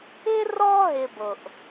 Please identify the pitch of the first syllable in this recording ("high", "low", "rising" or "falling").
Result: high